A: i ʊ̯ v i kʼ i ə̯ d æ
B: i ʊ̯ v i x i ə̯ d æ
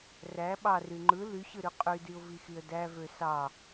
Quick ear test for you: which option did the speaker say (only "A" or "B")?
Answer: B